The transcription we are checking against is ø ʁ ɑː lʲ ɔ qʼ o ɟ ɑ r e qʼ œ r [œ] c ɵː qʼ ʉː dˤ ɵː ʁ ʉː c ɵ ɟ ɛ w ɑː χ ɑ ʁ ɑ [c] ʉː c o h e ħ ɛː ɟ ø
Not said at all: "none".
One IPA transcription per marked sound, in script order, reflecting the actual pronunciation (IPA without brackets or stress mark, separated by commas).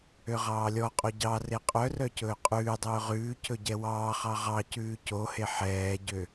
œ, c